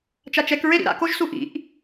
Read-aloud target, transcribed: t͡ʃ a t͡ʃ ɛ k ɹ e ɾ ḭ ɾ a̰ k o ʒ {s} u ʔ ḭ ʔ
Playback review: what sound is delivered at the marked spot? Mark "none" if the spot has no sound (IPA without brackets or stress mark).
s